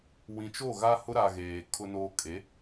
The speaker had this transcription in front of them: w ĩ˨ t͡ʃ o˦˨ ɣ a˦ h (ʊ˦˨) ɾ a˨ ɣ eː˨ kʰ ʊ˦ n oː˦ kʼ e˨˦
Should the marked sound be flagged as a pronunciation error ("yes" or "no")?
yes